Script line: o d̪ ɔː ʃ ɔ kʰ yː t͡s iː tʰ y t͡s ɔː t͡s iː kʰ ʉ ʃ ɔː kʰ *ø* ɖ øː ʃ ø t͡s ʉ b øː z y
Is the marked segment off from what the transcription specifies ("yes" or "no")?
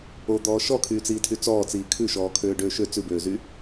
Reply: yes